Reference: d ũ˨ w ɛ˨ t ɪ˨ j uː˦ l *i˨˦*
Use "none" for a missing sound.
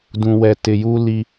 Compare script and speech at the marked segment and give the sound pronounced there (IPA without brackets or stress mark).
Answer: i˦